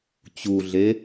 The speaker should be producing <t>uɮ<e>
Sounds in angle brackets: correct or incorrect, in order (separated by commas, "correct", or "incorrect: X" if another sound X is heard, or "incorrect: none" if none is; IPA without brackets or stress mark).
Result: incorrect: t͡ɕ, correct